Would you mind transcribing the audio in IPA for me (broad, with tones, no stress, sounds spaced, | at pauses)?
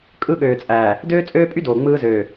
kʼ ɯ˦˨ ɠ øː˨ t͡sʼ æː˨ | d øː˦ t͡sʼ øː˦ pʼ y˦ d oː˨ ŋ͡m ɯː˦ z øː˨